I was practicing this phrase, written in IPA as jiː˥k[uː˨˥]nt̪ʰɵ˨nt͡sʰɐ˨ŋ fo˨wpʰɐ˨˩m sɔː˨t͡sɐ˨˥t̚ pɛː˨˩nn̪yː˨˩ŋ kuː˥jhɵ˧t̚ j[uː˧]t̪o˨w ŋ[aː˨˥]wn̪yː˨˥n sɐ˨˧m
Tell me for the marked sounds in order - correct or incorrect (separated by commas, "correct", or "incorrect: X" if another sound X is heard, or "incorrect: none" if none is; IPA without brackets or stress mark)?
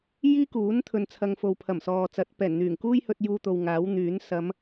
correct, correct, correct